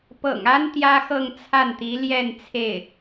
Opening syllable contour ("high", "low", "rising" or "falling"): low